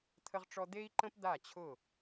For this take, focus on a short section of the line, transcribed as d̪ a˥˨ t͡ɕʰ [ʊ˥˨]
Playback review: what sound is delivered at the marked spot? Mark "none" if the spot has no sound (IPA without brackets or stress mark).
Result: ʊ˥˨